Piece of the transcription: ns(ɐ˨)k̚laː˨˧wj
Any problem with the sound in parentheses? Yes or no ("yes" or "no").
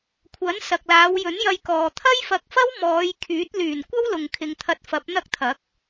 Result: no